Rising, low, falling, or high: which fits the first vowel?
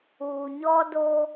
low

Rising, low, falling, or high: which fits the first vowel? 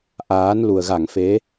rising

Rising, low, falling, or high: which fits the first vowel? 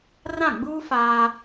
falling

